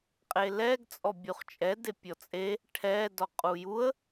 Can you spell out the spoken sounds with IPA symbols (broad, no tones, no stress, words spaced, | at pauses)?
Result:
qʼelɛɡ t͡sʼɔbʲuχt͡ʃʼɛ depʲɔt͡sʼe | ʈʰɛ dɔqʼujuə̯